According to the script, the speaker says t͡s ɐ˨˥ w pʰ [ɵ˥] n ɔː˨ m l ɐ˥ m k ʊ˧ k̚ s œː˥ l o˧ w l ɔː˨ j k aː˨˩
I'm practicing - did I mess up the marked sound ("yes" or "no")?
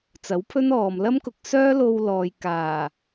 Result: no